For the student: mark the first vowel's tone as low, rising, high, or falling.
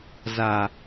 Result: low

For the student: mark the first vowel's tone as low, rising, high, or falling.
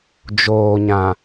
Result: low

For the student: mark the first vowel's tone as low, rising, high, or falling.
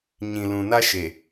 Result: low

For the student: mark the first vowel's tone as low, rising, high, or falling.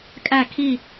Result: falling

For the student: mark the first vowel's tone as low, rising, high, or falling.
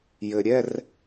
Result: low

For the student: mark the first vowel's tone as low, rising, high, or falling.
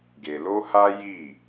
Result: low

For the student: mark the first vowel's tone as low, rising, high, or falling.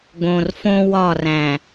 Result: low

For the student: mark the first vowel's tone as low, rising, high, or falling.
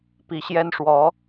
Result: rising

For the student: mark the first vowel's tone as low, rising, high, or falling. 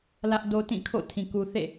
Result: high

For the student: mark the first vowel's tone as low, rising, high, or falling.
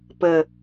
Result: falling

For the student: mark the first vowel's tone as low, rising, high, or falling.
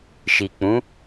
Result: low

